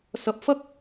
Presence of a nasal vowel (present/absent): absent